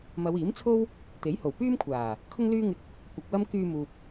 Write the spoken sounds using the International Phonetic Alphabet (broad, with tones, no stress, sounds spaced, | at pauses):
m ɐ˨˧ w iː˨˥ m t͡sʰ o˥ w | t̪ e˨˥ j h o˨˩ w p yː˥ m kʷʰ aː˨˩ | kʰ ʊ˥ ŋ l yː˥ ŋ ɪ˧ k̚ | kʷ ɐ˨ k̚ w ɐ˥ m k yː˧ m uː˨ p̚